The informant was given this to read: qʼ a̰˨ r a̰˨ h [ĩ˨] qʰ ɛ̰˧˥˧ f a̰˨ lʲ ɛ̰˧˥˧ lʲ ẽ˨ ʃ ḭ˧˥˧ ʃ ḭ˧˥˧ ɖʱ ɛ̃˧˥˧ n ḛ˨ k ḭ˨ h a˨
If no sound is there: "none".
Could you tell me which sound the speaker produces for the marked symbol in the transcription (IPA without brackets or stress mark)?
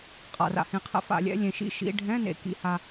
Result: ĩ˨